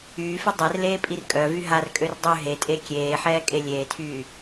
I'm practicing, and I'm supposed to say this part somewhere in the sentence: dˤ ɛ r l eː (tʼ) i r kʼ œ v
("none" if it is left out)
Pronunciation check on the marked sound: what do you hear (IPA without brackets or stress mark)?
pʼ